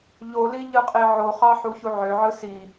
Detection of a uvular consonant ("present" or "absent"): present